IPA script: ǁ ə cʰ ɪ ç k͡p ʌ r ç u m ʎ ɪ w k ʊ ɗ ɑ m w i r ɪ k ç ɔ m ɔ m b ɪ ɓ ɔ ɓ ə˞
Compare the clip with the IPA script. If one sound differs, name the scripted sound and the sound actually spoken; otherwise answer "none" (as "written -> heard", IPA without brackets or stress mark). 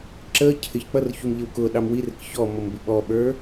none